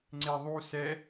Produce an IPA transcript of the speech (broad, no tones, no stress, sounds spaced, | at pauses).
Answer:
ŋ͡ǀ e ðˤ u s ɛ